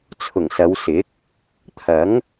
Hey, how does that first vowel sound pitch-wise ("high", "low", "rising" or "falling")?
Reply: low